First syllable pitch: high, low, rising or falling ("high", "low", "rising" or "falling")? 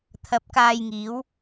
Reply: rising